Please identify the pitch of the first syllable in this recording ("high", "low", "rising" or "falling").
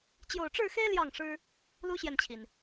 low